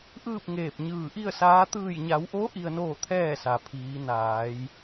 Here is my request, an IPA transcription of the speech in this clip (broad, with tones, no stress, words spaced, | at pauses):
ʔɯː˥˨p̚ŋeː˧˩p̚ ɲɯː˧˩ʔi˥˨ə̯saː˧˥ t̪ɯː˧˩jɲa˩˧wʔo˧˥ ʔi˧ə̯noː˥˨t̪ʰɛː˥˨sa˩ pʰiː˩˧ naː˩˧j